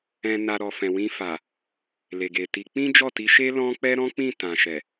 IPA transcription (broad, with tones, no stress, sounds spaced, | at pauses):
ɛ̃˨ n a˨ ɾ ɔ˨ f ɛ̃˨ w ĩ˧ f a˨ | l e˨ ɡ e˨ t i˨˦ k͡p ĩ˦ d͡ʒ ɔ˦˨ t i˨˦ ʃ e˦ l ɔ̃˦ k͡p ɛ˦ ɾ ɔ̃˦ k͡p ĩ˦˨ t ã˨ ʃ ɛ˨